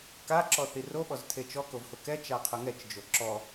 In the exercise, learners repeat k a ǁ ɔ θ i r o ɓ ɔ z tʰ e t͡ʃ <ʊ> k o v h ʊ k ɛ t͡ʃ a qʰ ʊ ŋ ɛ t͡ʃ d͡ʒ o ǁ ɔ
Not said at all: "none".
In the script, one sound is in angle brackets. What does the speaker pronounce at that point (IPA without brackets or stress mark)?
ɔ